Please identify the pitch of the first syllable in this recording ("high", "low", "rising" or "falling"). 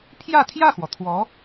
falling